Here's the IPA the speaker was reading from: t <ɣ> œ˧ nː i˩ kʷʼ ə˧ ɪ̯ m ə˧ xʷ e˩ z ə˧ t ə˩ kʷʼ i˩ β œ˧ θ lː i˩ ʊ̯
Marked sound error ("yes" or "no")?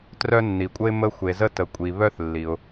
yes